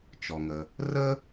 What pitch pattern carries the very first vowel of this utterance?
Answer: low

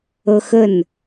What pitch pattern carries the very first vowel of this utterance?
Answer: high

